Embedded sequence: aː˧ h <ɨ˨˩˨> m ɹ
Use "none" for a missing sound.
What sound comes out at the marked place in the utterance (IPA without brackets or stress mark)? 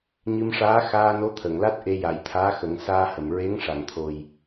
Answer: ə˨˩˨